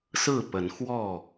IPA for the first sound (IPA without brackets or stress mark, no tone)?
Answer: s